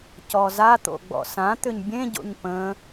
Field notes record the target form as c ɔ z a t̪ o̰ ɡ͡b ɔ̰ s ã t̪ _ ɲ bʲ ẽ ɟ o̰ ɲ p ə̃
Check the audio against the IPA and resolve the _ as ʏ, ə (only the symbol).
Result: ʏ